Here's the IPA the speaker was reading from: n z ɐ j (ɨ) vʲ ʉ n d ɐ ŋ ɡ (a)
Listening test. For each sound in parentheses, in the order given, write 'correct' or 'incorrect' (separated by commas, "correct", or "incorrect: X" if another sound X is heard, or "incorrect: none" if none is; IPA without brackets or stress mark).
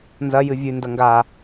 correct, correct